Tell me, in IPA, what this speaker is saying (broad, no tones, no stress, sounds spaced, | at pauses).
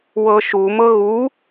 w ɤ ʃ u m ɤ ɣ u